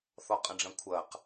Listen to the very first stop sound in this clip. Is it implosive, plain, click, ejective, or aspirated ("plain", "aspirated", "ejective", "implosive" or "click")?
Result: ejective